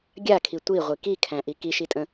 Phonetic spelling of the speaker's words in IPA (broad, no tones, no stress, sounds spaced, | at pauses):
ɡʲ a kʰ i tʷ i ʁʷ i k i kʰ æ̃ ʔ i k i ʃ i tʼ ə̃